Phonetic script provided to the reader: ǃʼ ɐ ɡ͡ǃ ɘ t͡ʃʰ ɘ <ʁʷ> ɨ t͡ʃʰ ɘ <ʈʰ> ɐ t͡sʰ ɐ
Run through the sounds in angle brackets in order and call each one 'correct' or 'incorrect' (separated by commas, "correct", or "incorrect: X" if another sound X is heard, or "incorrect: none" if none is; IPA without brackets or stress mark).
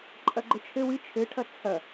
incorrect: w, correct